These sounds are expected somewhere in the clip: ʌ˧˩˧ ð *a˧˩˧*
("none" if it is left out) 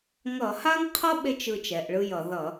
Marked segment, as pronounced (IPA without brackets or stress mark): ʌ˧˩˧